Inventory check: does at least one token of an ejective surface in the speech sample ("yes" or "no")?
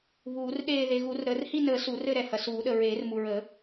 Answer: no